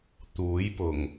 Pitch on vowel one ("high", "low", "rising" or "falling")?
rising